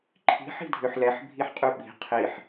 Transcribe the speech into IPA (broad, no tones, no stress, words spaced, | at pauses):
ǃʰi̤ ħi̤dʱøħlɛħ bʱiħqʼyɓi̤ qʰiħ